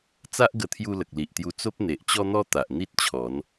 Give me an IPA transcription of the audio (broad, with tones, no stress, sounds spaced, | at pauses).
t͡s a˦ ʔ ɡ ə˧ t̪ʰ j u˧ l ə˨ k̚ l i˨ ʔ t̪ j u˧ t͡s o˦ p̚ n̪ e˨ ʔ t͡ɕ ɔ˦ n̪ ɔ˦ t̪ a˨ ʔ n̪ i˦ t̚ t͡ɕʰ ɔ˨˦ n